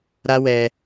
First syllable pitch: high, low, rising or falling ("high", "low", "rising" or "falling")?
high